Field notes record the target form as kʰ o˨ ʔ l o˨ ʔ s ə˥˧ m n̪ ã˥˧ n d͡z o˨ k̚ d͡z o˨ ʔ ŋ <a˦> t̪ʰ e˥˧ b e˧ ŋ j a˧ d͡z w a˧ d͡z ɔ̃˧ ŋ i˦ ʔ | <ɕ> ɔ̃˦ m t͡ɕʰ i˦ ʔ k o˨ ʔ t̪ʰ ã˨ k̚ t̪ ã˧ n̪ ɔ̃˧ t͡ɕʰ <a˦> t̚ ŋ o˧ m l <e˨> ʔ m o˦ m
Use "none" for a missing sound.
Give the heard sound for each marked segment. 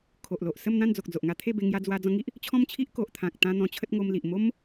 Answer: a˦, t͡ɕʰ, ə˦, i˨

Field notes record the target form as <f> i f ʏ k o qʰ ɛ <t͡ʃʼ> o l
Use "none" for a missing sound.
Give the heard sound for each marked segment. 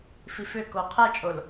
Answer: f, t͡ʃʼ

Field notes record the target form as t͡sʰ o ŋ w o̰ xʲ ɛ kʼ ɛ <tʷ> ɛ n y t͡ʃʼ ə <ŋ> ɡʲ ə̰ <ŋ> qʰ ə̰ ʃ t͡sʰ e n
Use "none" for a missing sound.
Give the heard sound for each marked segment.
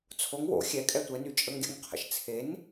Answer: tʷ, ŋ, ŋ

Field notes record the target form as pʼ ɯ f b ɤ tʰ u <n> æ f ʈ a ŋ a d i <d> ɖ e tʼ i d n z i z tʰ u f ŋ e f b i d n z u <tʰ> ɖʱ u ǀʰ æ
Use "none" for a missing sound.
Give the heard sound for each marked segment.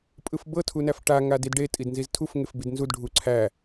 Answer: n, d, d

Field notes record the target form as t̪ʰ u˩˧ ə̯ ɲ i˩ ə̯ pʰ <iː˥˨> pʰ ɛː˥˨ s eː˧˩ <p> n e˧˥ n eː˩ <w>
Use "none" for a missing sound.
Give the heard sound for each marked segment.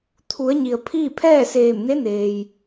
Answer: iː˥˨, m, j

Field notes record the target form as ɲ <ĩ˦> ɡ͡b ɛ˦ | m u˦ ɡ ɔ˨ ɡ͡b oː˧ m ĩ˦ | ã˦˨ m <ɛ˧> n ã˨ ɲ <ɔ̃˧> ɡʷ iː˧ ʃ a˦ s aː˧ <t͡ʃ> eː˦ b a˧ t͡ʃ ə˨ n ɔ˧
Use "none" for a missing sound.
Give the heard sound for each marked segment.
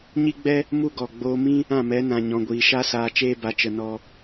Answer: i˦, ɛ˨˦, ɔ̃˧, t͡ʃ

